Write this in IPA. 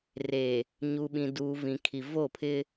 r e˨ | ɲ u˨ ɓ ĩ˨ d uː˨ v ĩ˨ kʰ i˨ v o˦˨ pʰ ɪ˦

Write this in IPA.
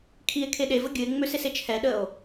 kʰ i e̯ kʰ e ɗ e v ə ɡʲ ɨ e̯ ŋ͡m ø s e s e t͡ʃʰ ɛ ɗ ə o̯

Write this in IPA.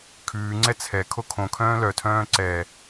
kʰ ʉː ŋ͡ǀ ɛ t͡sʰ ɛ kʰ o kʰ õ kʰ œ̃ː l œ tʰ œ̃ː ǀ ɛ

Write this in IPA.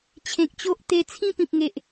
t͡ɕʰ ẽ˨ k̚ t͡ɕ o˦ ʔ t̪ e˧ t͡sʰ ĩ˥˧ p ĩ˨ p̚ ŋ e˨ ʔ

